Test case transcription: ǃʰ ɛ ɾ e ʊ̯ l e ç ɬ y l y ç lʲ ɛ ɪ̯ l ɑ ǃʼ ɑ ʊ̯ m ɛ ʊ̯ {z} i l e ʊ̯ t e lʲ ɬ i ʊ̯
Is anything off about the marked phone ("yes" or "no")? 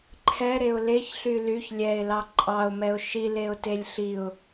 yes